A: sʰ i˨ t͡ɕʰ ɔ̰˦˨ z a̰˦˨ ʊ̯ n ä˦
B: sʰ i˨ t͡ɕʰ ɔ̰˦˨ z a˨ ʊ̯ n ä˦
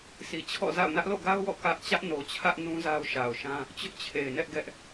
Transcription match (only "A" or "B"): A